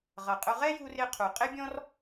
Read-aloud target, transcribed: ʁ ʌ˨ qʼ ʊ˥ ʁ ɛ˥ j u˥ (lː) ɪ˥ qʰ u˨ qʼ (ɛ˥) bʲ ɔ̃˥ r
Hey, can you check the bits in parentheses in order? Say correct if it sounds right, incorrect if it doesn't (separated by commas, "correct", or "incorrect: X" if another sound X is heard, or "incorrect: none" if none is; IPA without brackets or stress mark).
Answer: incorrect: r, incorrect: ɪ˥